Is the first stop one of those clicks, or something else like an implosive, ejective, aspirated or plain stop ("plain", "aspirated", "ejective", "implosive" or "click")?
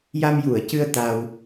plain